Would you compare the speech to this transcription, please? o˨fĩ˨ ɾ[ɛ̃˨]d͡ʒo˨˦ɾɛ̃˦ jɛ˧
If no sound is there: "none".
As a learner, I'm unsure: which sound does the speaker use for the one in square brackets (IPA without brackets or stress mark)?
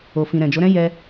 ɛ̃˨